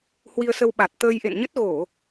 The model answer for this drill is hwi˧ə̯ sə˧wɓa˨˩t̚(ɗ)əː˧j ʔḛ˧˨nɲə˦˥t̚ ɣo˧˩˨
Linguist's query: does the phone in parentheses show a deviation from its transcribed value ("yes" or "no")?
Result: yes